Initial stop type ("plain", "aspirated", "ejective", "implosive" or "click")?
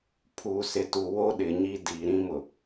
aspirated